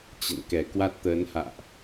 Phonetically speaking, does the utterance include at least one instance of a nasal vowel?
no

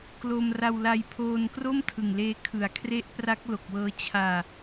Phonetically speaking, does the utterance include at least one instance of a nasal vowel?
no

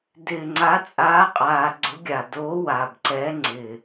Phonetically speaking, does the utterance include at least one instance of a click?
yes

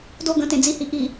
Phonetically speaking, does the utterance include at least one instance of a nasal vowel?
yes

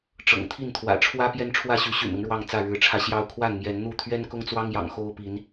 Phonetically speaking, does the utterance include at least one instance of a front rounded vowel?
yes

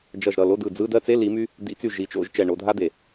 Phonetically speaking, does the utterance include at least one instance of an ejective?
no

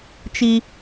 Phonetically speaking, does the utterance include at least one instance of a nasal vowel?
no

